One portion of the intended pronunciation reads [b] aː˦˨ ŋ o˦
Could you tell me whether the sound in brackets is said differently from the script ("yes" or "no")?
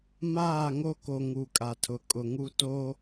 yes